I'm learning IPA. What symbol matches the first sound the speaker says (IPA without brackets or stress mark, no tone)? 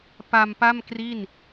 p